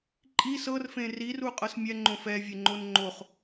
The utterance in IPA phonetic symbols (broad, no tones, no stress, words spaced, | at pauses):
ǃʼi sɤrfẽ riruqʼɤs mʲɛŋ͡ǃõ fɛvʲeŋ͡ǃon ŋ͡ǃoχ